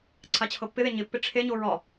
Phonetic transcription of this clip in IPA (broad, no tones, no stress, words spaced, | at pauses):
ǀʰat͡ɕʰɤpːɪðe ɲɪpːɪ ʈ͡ʂʰeɲo ɹɒ